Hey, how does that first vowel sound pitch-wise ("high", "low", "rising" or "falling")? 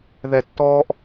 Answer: low